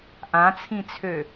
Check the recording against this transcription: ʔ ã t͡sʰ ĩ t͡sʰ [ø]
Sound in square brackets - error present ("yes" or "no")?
no